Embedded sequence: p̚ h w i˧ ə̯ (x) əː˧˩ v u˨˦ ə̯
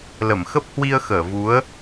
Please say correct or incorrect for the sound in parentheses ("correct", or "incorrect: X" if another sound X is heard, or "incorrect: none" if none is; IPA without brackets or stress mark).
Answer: correct